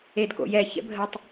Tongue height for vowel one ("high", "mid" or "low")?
mid